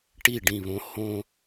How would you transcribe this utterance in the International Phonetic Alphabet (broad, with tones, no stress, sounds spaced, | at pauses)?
ʈ i˦˨ ɖ ĩ˦˨ β õ˦ h õ˦